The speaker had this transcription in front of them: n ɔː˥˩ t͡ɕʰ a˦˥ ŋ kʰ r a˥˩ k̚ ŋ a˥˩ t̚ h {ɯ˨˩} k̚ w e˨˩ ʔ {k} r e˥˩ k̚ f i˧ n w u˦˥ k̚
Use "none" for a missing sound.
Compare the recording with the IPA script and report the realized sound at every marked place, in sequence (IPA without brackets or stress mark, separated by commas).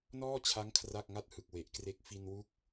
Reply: ɯ˨˩, k